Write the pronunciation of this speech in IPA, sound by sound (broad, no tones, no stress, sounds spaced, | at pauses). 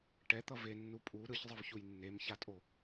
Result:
ʈ ɛ t̪ ʌ v e nː u pʼ u ɾ ɯ ç zˤ ɯ v ç u j nː e m ç a tʼ o